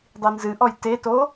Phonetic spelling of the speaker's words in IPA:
dˤinzɨ ʔɔjteto

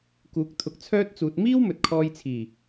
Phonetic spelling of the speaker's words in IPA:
kuː˨˥k̚t̪ʰʊ˧k̚t͡sʰœː˥t̚t͡suː˧t̚ miː˥wmɵ˨t̚kʰɔː˧jt͡sʰiː˨˩

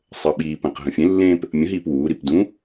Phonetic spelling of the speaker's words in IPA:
sˤəːɓiːpə̃ːq ɦə̃fʲẽlːẽːp | mʲə̃ɦiːp wuːɾip dũ

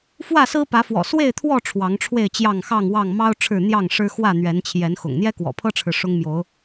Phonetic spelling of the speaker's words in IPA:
fwä˥˨sɹ̩˦pä˨˦fwɔ̰˨˩ swe˥˨ɪ̯t̪ʰwɔ˥˨ ʈ͡ʂʰwɑ˨˦ŋʈ͡ʂʰwe˥˨ɪ̯t͡ɕjɑ˥˨ŋ xɑ˥˨ŋwɑ˥˨ŋ mɑ˦ʊ̯ ʈ͡ʂʰɻ̩˥˨ n̪jɑ˥˨ŋʂɻ̩˦ xwä˥˨n̪ɥɛ˨˦nt͡ɕʰjɛ˨˦nxʊ̰˨˩ŋ n̪jɛ˦kwɔ̰˨˩pʰɤ˦ʈ͡ʂʰɻ̩˨ ʂʊ˦ŋmjo˨˦ʊ̯

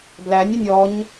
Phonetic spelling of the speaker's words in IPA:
blænʲənʲ ɔɲ

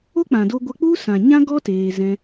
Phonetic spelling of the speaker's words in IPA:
o˦k͡pã˨do˧ ɡʷə˧k͡pu˦ sã˨ɲã˦ɡɔ˦ teː˧ zɛ̃˧

